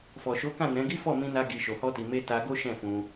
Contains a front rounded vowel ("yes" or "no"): no